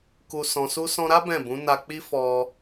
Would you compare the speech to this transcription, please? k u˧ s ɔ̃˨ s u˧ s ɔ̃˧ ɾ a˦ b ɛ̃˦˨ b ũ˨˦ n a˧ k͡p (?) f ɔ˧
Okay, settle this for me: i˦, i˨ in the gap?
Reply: i˦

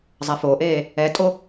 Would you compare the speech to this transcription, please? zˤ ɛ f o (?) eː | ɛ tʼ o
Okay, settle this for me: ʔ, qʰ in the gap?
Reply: ʔ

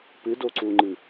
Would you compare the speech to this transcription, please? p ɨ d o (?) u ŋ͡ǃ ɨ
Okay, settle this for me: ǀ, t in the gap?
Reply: ǀ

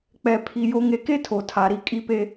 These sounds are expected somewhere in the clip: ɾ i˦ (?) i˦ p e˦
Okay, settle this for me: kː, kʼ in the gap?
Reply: kʼ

